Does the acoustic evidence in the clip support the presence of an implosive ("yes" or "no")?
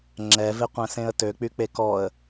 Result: no